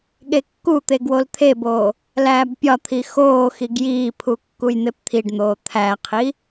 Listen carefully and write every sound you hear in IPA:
ɠ e kː u t̪ e ɡ w o l t̪ʰ e b oː | l æː b pʲ ɒ t̪ʰ i x oː x i ɡ j iː pʰ u kː u j n̪ e p t̪ʰ i ɖ n̪ oː t̪ʰ æ qʰ i

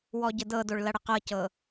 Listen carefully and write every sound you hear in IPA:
w ɔ ɟ ə d ɤ d o ɭ l ɐ ɽ ə q ɤ c ɤ

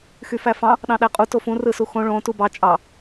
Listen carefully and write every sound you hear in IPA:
x y f æ f ɑ̃ | ɗ ɑ̃ ɗ æ qʼ u t o f ũ r ɯ s u x õ ɭ õ t u b ɑ t͡ʃʼ ɑ

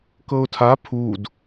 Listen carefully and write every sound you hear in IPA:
k ɤ ʊ̯ tʰ a pʰ u d

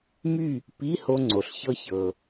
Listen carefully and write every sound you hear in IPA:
m y˥˨ | p i˧˥˧ h o˧ ŋ͡ǀ o˩ ɬ ç ɤ˧ ç ɤ˩

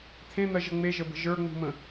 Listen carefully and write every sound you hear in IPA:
t̪ʰ ẽ n̪ ɜ ʒ ə ŋ͡m e ʒ ə b ə̤ ʒ ə˞ ŋ͡m ṳ m ə̃

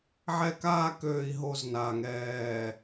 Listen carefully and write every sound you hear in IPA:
ʕ ɛ˦ k aː˦ k øː˨ i̯ ɦ o˨ z n aː˨ ŋ ɛː˨

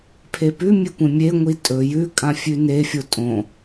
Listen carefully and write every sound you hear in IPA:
pʰ e p ʉ mʲ e kʷ ẽ mʲ e ŋʷ i tʼ ɵ j ʉ kʼ ã fʲ ʉ n e fʲ o tʼ õ

